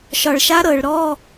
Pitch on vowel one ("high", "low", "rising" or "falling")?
low